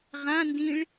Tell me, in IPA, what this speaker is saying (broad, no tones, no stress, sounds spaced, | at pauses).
ʁ ã n d ĩ ɭ